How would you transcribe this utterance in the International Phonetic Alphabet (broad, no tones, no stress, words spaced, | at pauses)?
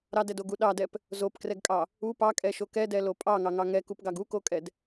ɾɑdɛdoɡu ɗɑdɛp | zopkrɛɡkʼɑ | u pɑkʼɛʃo kɛdɛlo pʼɑŋɑŋɑ ŋɛkupɡɑɡ ukokʼɛd